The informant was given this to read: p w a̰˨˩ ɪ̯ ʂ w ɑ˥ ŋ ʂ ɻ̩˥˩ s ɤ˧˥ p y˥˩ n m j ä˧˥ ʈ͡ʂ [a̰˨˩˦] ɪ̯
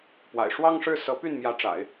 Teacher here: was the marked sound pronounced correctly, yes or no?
yes